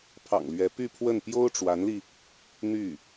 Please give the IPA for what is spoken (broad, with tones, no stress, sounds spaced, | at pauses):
pʰ ɑ̰˨˩ ŋ l ɥ ɛ˧˥ p y˥˧ pʰ w ə˥˩ n p j o˥ ʊ̯ ʈ͡ʂ w a˧˥ n l i˧ | n̪ y˥˩